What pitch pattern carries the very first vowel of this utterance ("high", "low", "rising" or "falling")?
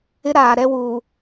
high